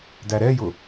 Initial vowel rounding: unrounded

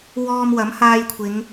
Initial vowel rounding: rounded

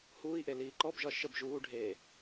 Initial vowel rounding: rounded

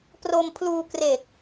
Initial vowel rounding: rounded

